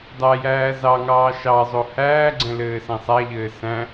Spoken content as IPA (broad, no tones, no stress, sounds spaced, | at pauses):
dˤ æ j æː z ɑ ŋ ɑː ʃ ɑ zˤ o h æː ɡ͡ǀ ɛ̃ l ɘː s ɛ̃ sˤ æ ʎ ɘː s æ̃